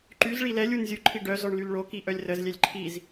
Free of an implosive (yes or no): yes